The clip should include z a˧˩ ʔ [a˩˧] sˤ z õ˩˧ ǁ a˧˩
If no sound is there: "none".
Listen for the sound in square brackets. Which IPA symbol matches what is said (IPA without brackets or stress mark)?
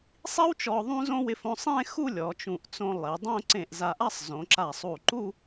a˥˧